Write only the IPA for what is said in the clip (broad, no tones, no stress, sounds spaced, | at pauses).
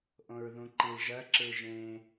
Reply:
ʔ õ ɹ ð ũ ǃ i l ʒ ɜ ǁ ɯ ʒ ẽ